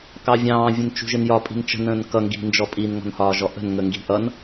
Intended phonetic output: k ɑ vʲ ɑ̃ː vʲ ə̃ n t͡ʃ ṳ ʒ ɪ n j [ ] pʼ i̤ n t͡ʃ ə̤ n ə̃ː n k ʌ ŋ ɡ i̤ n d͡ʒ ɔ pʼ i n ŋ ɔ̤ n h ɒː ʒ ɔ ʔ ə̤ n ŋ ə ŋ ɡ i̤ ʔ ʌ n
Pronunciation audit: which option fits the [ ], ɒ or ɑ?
ɒ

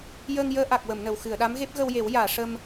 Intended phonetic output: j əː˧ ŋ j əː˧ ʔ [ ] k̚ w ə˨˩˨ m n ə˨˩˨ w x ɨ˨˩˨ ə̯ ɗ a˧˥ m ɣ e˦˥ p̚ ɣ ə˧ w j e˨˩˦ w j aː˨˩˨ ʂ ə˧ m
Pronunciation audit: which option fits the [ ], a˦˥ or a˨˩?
a˨˩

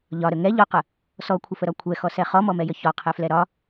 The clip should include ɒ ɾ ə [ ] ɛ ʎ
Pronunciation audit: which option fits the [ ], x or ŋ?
ŋ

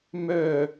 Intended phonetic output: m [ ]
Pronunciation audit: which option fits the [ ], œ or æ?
œ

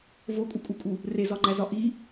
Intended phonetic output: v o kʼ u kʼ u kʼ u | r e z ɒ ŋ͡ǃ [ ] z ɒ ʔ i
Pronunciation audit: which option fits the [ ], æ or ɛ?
æ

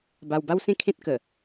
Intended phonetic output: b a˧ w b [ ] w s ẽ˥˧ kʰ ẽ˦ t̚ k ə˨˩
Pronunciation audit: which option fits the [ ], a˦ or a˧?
a˦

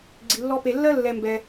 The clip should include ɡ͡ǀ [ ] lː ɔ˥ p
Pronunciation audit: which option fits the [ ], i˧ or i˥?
i˧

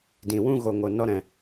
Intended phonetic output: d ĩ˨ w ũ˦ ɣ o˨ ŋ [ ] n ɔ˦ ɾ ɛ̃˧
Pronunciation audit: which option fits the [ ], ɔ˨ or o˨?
o˨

